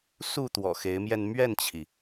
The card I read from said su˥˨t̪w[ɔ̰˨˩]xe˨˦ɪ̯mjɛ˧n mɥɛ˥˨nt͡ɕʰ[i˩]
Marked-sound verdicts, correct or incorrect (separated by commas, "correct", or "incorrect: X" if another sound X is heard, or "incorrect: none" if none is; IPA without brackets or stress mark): correct, correct